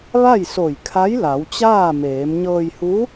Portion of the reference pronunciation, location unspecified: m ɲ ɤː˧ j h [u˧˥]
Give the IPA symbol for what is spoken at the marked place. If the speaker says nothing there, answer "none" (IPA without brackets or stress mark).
u˧˥